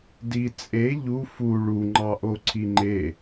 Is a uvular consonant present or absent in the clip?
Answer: absent